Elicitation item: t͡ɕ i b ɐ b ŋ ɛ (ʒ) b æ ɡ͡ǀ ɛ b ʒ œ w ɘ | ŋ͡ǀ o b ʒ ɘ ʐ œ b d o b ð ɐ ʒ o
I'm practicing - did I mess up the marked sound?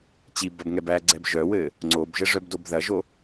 yes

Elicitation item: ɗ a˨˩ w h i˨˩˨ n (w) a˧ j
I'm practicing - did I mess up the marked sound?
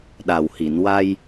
no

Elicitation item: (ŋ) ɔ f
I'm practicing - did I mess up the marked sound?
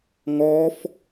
no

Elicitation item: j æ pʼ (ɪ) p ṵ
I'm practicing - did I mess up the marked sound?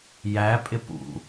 no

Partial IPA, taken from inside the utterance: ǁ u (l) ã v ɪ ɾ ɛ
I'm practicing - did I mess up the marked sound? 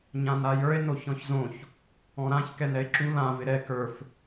no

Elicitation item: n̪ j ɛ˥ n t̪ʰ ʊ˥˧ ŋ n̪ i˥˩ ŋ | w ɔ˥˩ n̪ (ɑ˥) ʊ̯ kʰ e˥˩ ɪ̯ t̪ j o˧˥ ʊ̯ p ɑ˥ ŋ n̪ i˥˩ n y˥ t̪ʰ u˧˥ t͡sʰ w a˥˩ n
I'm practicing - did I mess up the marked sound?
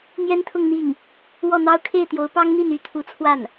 no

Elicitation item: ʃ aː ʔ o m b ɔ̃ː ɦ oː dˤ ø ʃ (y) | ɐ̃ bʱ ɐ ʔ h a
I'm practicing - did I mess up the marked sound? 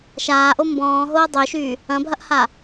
no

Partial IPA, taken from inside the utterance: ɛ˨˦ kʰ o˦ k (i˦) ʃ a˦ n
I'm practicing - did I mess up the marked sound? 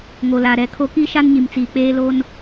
no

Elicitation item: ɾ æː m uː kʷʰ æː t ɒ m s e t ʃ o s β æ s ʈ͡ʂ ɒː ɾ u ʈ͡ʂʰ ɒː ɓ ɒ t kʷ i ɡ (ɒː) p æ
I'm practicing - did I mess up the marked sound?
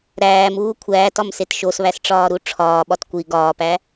no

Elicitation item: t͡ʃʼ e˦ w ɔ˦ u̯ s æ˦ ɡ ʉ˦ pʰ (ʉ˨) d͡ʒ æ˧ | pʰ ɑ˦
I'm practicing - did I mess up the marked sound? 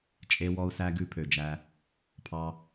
yes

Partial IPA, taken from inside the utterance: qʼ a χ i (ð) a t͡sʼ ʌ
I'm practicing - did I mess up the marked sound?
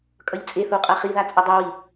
no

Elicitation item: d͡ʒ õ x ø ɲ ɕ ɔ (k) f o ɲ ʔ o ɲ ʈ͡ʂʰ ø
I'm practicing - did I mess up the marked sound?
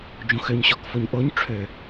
no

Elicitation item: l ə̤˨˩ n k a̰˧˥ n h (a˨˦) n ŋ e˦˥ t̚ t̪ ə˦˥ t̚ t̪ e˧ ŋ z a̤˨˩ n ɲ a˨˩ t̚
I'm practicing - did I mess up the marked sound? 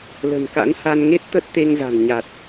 yes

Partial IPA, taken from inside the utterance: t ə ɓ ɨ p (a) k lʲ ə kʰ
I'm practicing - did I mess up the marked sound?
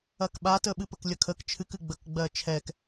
yes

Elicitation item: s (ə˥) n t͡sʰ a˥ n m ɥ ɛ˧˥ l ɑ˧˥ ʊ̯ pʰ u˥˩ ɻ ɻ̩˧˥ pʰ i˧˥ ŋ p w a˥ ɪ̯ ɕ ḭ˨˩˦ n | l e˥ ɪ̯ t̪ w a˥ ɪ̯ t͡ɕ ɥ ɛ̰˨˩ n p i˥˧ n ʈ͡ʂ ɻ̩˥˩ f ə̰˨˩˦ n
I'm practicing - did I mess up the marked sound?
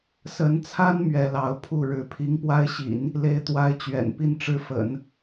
yes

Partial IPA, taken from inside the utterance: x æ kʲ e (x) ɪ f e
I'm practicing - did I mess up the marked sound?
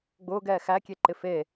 yes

